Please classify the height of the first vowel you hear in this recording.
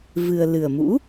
high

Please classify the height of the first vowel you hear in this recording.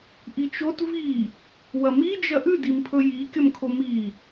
high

